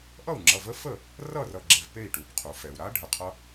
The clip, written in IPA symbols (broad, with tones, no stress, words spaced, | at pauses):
ʔʌ˥˩u̯ŋ͡ǁʌ˩˧˩və˦˥ fə˥˩ | rʌ˥˩rʌ˧˩ ɡ͡ǁe˧˩vpe˥˩i̯ ʈu˩bqʰu˩fɛ˩u̯ɾa˦˥ ɖʱə˩qʰʌ˦˥